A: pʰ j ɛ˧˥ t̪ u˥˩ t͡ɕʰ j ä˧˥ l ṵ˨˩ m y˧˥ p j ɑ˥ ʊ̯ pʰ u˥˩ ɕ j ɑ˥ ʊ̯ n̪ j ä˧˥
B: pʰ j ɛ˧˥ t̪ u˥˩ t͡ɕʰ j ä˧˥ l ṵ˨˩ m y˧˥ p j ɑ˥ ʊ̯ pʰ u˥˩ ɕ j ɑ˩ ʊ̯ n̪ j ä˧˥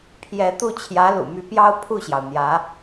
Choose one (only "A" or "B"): B